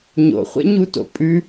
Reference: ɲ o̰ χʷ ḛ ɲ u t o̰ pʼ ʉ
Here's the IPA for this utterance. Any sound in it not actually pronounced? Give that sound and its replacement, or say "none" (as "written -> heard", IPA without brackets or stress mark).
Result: none